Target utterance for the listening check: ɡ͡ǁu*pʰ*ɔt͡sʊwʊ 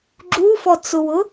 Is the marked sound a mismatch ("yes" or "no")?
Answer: yes